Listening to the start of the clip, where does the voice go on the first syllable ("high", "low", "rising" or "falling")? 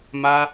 high